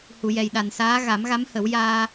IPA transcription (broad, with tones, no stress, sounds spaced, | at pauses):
h u˨˩˨ j ɛ˨˩ j ɗ a˨˩ n s aː˧˥ ɣ a˨˩˦ m ɣ a˧˥ m h ə˨˩˦ w j aː˧